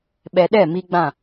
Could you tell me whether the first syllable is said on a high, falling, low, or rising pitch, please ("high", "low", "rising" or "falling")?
low